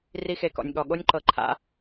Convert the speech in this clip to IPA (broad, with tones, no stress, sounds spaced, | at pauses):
r i˧ x e˨ k ɔ̰˨ nʲ ɠ ɔ˨ ɠ o˦ nʲ ǃ ɤ˨ ǃʰ a̰˦